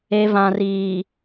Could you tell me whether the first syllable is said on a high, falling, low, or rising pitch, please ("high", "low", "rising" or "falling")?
low